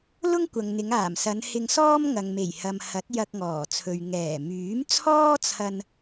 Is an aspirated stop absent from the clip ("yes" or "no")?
no